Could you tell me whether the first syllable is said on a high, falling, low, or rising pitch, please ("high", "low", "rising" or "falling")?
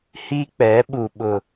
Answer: high